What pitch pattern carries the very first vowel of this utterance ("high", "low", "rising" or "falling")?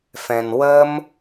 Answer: low